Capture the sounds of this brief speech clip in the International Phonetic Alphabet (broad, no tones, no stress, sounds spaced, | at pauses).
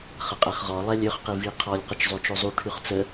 χ ə qʼ ɛ χ ʁ ɔ lˠ ɛ lʲ ø χ q i v i qʰ ɔ lʲ q ə t͡ʃ zˤ o t͡ʃ o zˤ u ʈʰ y χ t͡s ə